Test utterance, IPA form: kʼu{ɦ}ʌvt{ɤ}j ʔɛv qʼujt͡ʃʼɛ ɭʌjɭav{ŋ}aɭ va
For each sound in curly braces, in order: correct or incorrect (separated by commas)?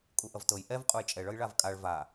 incorrect, correct, incorrect